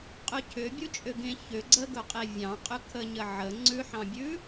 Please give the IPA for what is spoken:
qʼɵcʰʏ bʲut͡ʃʼʏɡẽ çʏ ɡ͡ǀəɡɵqʼe vʲɑ̃qʼʏ kʰəɲə ʕə ŋ͡ǀʉħɑ̃bʲʉ

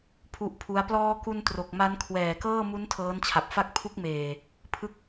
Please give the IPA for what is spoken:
pʰu˦˥ʔpʰu˦˥a̯ plɔː˧ku˧n tro˨˩k̚ma˦˥n kʰwɛː˨˩kɤː˥˩mu˦˥n tʰɤː˦˥nt͡ɕʰa˨˩p̚fa˥˩k̚ pʰu˦˥k̚meː˨˩ | pʰɯ˦˥k̚

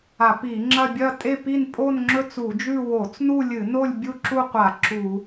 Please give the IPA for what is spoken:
a˧˩˧pi˧˩˧ŋ͡ǁɐ˥˧ bʲɐ˥˧tʼe˥˧pi˥˧n pʼo˥˧nŋ͡ǁɵ˥˧ t͡su˧˩˧d͡ʒʉ˥˧ wo˧˩˧t͡snu˥˧lʲɨ˧˩˧no˥˧lʲ bʲu˥˧ǁu˥˧qʷa˧˩˧ ǁu˧˩˧

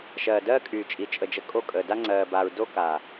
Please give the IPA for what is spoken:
ʃɜː˨dɜː˦kʼyː˨ t͡ʃʼi˨ t͡ʃʼə˨d͡ʒə˨˦ kʼo˦˨kʼəː˨ da˦ŋ͡ǀɜː˨baː˨ɹ do˦ kaː˨

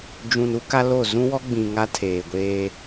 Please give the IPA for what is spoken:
d͡ʒũ˨nu˦ ka˦lo˦˨ zũ˦wɔ˦ɡ͡bĩ˨ ŋa˦tʰeː˨ɡʷeː˦

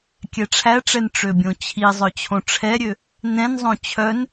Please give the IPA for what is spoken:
kʲɛʈ͡ʂʰæʈ͡ʂɛn ʈ͡ʂøbʲõt͡ɕʰizˤœ t͡ɕʰõʈ͡ʂʰɛɾʲø | nɛ̃nzˤõ t͡ɕʰœn

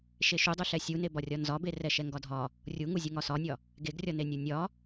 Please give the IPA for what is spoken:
ʃeʃudˤuɬɛ sʲunebɒrʲɒ nzɒbe rɛʃɛŋɡɒdʱɒ | rʲuŋuzʲu ŋɒsɒnʲɒ | ɡeɡrʲɒnenʲu nʲɒ

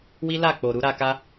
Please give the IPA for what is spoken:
wi˦la˦˨k͡po˨ ɾu˨˦ɾa˧ka˦

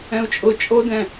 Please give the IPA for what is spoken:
ɛ̃u̯t͡ʃʼʊ t͡ʃʼodɛ̃

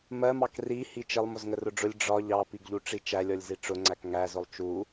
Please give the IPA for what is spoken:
mɜmɑk ri hit͡ʃɪlˠ mʊzŋərʊɖ͡ʐʊlʲ ɖ͡ʐɒ ʎɑpiɡʎuʈ͡ʂi t͡ʃælʲɔlʲzi ʈ͡ʂʊŋ͡ǀæk ŋæzʊlˠ t͡ʃu

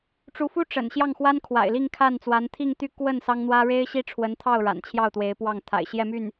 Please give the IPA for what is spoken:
ʈ͡ʂu˧˥fu˥ ʈ͡ʂə̰˨˩n ɕjɑ˥˩ŋxwa˥n kʰwa̰˨˩ɪ̯li˥˧ŋ kʰa˥˩nt͡swa˧˥n t̪ʰi˥˧ŋt̪y˥˧ kwə˥˩n sɑ˥ŋn̪wä˥ ɻe˥ɪ̯ɕi˥ʈ͡ʂʰwə˧˥nt̪ʰɑ˥˩ʊ̯ ɻa̰˨˩nt͡ɕʰjɑ˥˩ʊ̯t̪we˧˥ɪ̯pwɑ˥˩ŋ t̪ʰa̰˨˩ɪ̯ɕjɛ˥˧my˥˩n

